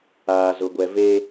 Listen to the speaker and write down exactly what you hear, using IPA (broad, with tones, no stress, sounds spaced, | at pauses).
aː˨ z ʊ˨ ɡʷ ɛ˨ v e˦